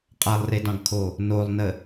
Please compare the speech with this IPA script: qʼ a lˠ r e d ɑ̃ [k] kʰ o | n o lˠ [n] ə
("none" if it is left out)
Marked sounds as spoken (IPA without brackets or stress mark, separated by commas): ɡ, n